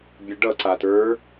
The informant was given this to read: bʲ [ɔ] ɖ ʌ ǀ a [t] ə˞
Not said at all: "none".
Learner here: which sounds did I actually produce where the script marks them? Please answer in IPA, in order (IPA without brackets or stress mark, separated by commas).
ə, t